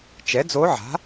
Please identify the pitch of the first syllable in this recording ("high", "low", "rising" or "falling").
rising